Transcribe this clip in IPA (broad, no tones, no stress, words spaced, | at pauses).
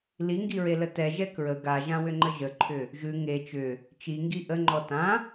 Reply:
liŋɡiɹelə tɛʒɛ kɹə ɡaʒãwʏŋ͡ǃə ʒəǃʰʏ | ʒʉ ŋe t͡ʃʏ | t͡ʃiŋɡi ʔəŋ͡ǃɔ tã